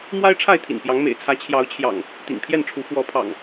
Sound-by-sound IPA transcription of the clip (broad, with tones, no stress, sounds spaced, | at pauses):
m w a˦ ɪ̯ ʈ͡ʂʰ a˥˨ ɪ̯ t̪ʰ ḭ˨˩ n p j ɑ˨˦ ŋ m ḛ˨˩ ɪ̯ t͡sʰ ä˨˦ t͡ɕʰ j ɑ˨˦ ʊ̯ t͡ɕʰ j ɑ̰˨˩ ŋ | t̪ ḭ˨˩ ŋ pʰ j ɛ˥˨ n ʈ͡ʂʰ u˨˦ f w ɔ˨˦ pʰ ɑ̰˨˩ ŋ